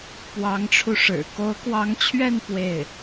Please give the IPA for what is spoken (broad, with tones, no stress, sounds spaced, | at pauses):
p w ɑ˧˥ ŋ ʈ͡ʂʰ u˧ ʂ ɻ̩˨˩ k o˧˥ ʊ̯ k w ɑ˧˥ ŋ t͡ɕʰ ɥ ɛ˥˧ n p w e˥˩ ɪ̯